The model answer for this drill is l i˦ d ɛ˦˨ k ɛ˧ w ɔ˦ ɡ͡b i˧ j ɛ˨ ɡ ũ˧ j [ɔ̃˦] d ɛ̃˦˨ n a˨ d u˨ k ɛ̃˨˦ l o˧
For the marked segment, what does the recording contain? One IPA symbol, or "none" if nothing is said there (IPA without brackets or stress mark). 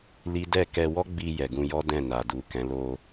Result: ɔ˦